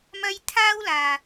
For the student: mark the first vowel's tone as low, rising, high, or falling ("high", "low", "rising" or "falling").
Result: high